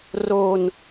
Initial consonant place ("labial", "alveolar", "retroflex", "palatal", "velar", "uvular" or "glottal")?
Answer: alveolar